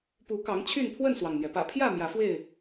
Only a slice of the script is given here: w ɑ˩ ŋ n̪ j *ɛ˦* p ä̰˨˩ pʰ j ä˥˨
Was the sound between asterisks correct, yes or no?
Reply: no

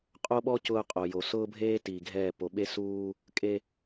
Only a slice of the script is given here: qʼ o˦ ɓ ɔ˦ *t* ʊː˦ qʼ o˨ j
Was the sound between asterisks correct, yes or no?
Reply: no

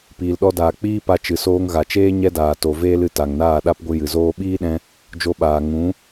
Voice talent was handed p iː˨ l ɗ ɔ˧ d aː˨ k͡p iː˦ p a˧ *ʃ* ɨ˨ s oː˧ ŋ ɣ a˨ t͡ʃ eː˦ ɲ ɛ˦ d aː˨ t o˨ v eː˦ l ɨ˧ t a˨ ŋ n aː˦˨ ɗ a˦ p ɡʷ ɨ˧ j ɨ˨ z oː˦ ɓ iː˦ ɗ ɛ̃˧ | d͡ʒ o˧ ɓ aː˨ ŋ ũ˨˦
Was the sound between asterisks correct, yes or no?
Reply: no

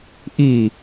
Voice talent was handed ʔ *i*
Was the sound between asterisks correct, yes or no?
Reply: yes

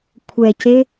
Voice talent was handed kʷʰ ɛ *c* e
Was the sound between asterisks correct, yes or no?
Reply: yes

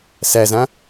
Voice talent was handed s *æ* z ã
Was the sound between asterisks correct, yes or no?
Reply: yes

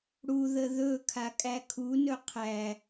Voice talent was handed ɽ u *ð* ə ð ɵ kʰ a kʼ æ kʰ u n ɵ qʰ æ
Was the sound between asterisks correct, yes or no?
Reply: yes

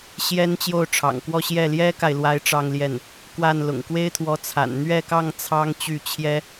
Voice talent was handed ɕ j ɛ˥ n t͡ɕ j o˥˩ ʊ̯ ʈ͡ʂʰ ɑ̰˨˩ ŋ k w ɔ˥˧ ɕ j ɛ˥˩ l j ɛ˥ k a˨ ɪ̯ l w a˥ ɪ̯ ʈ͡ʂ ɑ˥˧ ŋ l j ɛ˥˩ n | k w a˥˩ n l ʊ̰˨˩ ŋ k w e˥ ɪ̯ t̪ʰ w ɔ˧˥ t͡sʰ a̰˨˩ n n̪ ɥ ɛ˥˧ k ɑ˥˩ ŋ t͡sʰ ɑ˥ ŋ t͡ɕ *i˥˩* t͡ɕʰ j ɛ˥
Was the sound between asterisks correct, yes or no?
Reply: no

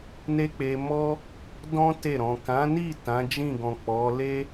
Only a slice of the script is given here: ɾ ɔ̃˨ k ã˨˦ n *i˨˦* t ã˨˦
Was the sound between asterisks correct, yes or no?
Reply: no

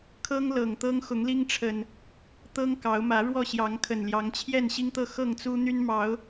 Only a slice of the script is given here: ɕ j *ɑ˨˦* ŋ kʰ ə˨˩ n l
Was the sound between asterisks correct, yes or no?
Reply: yes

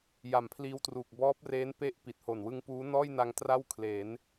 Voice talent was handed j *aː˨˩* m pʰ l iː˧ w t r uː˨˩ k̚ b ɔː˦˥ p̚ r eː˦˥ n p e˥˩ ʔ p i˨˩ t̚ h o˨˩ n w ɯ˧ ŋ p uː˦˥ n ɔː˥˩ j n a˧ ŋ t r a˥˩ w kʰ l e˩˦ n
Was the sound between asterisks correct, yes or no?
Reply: no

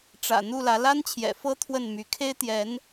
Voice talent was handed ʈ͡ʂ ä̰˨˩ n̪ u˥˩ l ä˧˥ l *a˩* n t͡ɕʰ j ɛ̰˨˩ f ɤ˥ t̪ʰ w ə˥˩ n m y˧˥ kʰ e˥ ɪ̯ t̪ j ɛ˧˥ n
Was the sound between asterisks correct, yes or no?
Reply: no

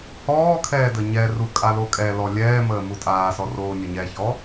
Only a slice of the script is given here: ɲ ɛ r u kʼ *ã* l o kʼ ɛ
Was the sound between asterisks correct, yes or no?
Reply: no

